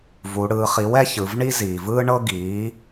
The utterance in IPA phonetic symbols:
vu˩˧ɽɯː˩˧χi˩˥w ɛ˥çɯ˩˧vɳi˥ ziː˩vɯː˥ɳɤ˥ɡiː˩˥

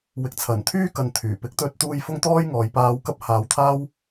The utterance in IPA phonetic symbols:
wɪ˨k̚t͡sʰɐ˨˩nt̪ʰyː˥kɐ˨n t̪ʰyː˨˩ pɪ˨˥k̚t̪ɵ˧t̚t̪uː˧j fʊ˥ŋt̪ɔː˥jŋɔː˨˧j paː˧wkɐ˥p̚ haː˨˧wt̪ʰaː˥w

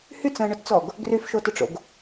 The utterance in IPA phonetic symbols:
hyt͡sə̃ːɳʊtt͡sɔɡ | ɡryfʃotʊʈ͡ʂo̰ɡ

